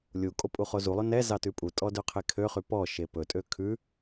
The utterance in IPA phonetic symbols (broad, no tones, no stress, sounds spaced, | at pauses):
lʲ u kʼ o pʼ u χ o z u lˠ ɵ n ɛ z ɑ t ʉ pʼ u tʼ ɔ d ø qʰ e kʰ ø χ y p ɔ ʃ e p ɵ tʼ ø kʰ ʉ